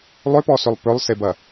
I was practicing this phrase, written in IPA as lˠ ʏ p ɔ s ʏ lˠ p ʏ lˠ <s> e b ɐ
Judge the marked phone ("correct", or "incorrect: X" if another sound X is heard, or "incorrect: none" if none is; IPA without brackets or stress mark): correct